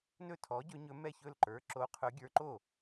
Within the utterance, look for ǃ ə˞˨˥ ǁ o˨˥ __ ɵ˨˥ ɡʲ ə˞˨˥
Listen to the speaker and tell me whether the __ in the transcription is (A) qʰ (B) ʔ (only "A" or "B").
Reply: A